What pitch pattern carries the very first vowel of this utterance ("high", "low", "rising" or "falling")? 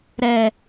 low